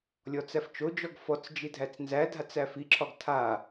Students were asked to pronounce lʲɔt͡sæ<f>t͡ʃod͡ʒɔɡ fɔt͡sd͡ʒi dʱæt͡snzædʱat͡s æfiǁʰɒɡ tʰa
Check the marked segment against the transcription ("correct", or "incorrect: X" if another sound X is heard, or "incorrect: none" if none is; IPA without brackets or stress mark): correct